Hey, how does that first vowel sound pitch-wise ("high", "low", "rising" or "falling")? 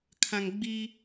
low